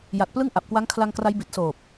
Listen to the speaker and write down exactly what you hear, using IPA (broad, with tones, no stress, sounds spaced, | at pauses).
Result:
j a˨˩ t̚ p l ɯ˥˩ ŋ ʔ a˨˩ p̚ k w a˦˥ ŋ kʰ l a˧ ŋ k r a˦˥ j b i˨˩ t̚ s oː˨˩ p̚